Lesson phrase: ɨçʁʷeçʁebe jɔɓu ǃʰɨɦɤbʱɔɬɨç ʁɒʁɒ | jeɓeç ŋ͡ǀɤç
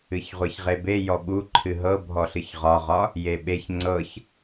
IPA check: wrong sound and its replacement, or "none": none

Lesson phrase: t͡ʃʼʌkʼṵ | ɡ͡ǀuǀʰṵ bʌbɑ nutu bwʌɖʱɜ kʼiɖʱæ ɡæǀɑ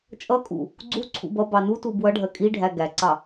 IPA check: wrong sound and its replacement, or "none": none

